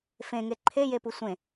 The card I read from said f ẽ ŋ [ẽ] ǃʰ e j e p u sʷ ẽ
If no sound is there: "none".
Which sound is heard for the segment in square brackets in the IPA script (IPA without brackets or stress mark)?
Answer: e